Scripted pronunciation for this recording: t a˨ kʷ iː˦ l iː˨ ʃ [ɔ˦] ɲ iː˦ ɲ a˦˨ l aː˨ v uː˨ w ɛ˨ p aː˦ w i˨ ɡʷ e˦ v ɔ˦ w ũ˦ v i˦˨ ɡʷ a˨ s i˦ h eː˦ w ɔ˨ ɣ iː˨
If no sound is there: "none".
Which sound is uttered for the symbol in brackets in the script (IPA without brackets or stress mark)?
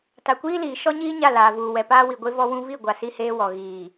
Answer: ɔ˦